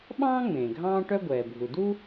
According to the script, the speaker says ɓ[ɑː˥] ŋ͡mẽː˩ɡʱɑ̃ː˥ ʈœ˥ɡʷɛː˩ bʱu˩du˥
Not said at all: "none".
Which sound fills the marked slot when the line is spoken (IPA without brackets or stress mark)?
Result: ɑ̃ː˥